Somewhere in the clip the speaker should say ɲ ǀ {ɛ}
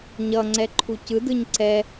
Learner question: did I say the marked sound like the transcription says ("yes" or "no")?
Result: yes